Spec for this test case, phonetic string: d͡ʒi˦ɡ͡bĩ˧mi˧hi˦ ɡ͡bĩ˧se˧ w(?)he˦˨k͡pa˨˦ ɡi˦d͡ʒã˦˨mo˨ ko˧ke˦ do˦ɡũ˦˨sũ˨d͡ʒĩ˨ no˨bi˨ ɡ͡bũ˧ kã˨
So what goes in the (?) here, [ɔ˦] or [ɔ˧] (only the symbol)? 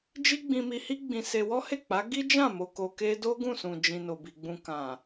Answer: ɔ˦